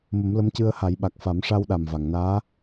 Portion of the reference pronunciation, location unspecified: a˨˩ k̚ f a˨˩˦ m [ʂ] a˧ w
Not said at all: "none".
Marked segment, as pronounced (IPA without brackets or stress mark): ʂ